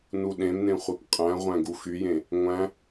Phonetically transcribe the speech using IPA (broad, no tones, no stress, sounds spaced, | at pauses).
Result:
n u ɗ ẽ m n ẽ χʷ e p qʼ æ̃ ʁʷ æ̃ ɡ u x y j ẽ | ŋʷ æ̃